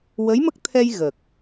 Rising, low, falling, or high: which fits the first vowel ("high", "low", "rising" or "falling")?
rising